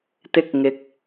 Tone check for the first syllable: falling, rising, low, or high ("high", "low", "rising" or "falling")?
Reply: high